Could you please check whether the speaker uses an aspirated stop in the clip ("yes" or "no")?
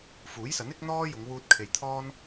yes